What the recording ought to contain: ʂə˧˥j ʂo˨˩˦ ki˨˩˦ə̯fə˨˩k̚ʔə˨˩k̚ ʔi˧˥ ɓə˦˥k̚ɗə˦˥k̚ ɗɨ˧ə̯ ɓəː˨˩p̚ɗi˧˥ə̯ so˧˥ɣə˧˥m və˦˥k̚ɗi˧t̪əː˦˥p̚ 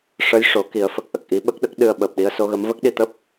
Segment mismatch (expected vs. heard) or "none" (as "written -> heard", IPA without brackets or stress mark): none